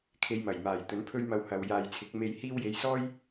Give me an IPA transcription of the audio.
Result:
kʰe˨˧jmɐ˨˩jmaː˨˩j t̪ɵ˨˥npʰɵ˥ɥmɐ˧w hɐ˨w jaː˨jt͡sʰɪ˨˥k̚me˧jhiː˥w je˨˧jsɔː˥j

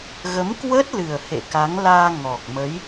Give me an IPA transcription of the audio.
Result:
ɣə˨˦mkwə˦˥t̚lɨ˨˩ə̯ hḛ˧˨ka˨˦ŋ laː˧ ŋɔ˨˩k̚ mə˨˦j

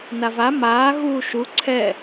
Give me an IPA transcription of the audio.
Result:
nava maː ɣuːʃu ǀʰɛ

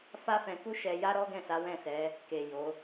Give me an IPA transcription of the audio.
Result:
fa˦fɛ̃˧ku˦ʃɛ˧ ja˦ɾɔ˦ɡɛ̃˦˨ sa˨˦wɛ̃˦˨sɛ˨˦ | ke˨ jo˨˦

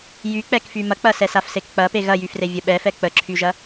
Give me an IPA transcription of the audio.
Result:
jyk͡pɛkfy mɐk͡pɐsɛsaf sekk͡pɐpe ɣɐjyfre vʲəɓɛfɛ k͡pəǁʰyʒɐ

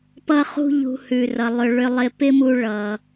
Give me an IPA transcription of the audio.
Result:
pʌ˧χṳ˧ʎṳ˨ hʉ˨rʌ˨lˠʏ˧ ɭʏ˧lˠɪ˧ pɪ˦mu˧ ɭʌ˨

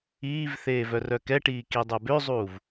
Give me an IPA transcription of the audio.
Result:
iːvθeːv œrœkɛʈiː kidˤœbøzˤuːv

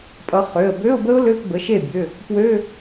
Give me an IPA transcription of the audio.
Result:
pʼʌ˨˦ χø˩˧˩ə̯bø˧˥˧ʊ̯bə˦˥ʊ̯ lø˧˥˧pbə˩˧˩ ʃe˥˩bʲø˩˧˩ | pwø˧˥˧

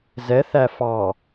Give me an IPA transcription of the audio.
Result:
zɛ θæfɑ

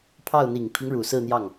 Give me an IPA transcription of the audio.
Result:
pʰɑ˥˩ʊ̯ n̪i˨˩ŋpʰi˦ŋɻu˨˩ sɹ̩˥˧n̪jɑ˥˩ŋ

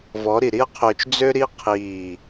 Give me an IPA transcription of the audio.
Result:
vɔ˨˦ɾi˨ɾi˦ɐ̯qʰøː˧t͡ʃ d͡zø˦ɾi˦ qʰiː˦˨

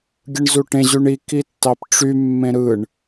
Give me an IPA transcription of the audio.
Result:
ɡʲɯɳzuʈẽ ʑyɳi kitːɑpʈ͡ʂy mːẽɾɯɳ

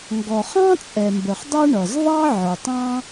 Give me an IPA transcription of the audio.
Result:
ŋɡɔ˩χɑ̃˥t͡sʼɛ˩mbə˩χ dˤʌ˥ɳʌ˩z ðˤɑ˥ ʕə˞˩tˤɑ̃˥

